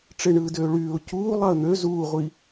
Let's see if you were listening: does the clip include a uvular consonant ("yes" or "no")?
yes